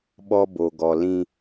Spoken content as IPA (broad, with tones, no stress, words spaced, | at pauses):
ɓɔ˦bo˨ɡɔ˨lĩ˦